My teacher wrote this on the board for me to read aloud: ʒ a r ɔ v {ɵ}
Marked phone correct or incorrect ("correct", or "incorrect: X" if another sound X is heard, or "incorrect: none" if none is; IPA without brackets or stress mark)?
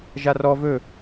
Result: correct